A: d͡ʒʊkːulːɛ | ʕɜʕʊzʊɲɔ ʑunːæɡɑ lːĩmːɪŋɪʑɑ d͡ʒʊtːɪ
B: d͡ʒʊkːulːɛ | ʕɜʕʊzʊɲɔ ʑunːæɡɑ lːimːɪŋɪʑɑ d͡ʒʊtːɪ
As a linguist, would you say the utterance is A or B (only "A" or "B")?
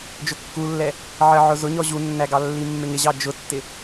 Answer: B